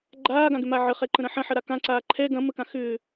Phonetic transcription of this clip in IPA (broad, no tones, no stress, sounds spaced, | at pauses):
ɡ͡ǃ aː ɡ ã ɡ ʏ m a ʕ ə χ ɛ ǃ ə̃ ɾ ɐ̃ ħ ɐ̃ ħ ɐ ɾ a k ã ǀ aː ǃʰ ɛ ɡ ɐ̃ m ə k ã x ʏː